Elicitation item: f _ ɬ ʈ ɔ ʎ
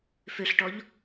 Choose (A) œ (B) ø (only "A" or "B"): B